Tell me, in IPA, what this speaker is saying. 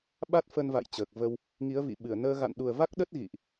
ɓ a˦˥ t̚ f ə˧ n v a̰˧˨ j t͡ɕ əː˨˩ k̚ v ə˧ w | ŋ i˨˦ ə̯ v ḭ˧˨ ɓ ɨ˧˩ ə̯ n əː˧ ɣ a̰˧˨ n ɗ u˨˩ ə̯ v a˦˥ k̚ ɗ ə˦˥ t̚ ɣ ḭ˧˨ ʔ

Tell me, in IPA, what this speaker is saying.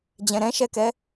d͡ʑ ɛ̃ ɾ ɛ̃ ʃ ɛ k ɛ

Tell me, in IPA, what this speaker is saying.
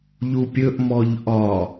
ʎ u pʲ ɵ ʔ m ɔ ʎ ʔ ɒ

